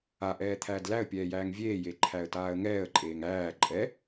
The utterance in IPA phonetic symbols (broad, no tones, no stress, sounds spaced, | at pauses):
a ʔ ɛː t̪ʰ æː d l æ ə̯ pʲ ɛː j æː ŋ vʲ eː j e ǃʰ æ ə̯ t aː ə̯ ŋ ɛː ə̯ ǃʼ eː ŋ æː ǃʼ ɛ